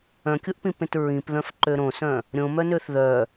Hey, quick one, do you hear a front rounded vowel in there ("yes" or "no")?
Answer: yes